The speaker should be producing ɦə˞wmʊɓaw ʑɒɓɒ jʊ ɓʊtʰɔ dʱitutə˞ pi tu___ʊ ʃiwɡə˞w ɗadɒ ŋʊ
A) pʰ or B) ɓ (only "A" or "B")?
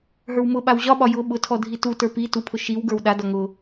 A